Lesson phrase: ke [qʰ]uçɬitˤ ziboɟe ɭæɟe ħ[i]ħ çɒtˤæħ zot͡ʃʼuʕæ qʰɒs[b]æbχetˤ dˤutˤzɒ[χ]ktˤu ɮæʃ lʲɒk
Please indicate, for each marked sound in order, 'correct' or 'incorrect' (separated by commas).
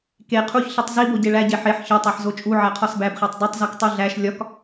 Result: correct, incorrect, correct, incorrect